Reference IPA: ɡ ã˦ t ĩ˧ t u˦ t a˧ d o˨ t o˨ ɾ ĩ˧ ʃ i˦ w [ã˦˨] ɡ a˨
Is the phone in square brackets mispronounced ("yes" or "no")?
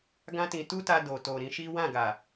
no